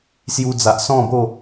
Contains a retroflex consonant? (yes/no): no